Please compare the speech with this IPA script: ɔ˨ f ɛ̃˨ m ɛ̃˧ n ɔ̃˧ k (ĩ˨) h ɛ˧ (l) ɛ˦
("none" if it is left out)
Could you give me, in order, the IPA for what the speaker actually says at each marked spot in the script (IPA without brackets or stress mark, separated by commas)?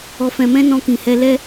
ĩ˨, l